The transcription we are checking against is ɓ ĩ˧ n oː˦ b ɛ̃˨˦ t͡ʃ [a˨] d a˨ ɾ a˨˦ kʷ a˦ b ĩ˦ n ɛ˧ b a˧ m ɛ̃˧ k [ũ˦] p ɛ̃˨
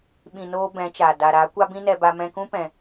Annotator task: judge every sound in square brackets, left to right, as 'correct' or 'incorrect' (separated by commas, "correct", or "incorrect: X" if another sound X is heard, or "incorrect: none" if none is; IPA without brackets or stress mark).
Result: correct, correct